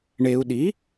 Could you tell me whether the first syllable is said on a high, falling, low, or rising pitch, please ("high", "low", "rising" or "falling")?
low